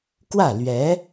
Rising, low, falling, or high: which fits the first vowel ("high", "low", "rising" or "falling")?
falling